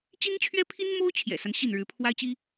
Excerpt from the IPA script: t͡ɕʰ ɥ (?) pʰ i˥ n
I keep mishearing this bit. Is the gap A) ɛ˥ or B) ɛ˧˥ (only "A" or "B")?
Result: A